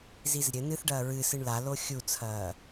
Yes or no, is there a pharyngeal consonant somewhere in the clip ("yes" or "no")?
no